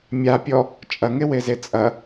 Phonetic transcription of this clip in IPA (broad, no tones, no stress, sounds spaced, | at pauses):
mʲ a pʲ ɔ | t͡ʃʼ ɐ ŋ e w e z e t͡sʼ ɐ